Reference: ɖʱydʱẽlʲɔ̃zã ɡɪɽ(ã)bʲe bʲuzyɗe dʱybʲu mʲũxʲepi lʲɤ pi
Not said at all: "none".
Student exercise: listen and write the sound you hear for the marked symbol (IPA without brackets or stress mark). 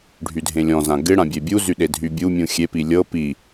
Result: ã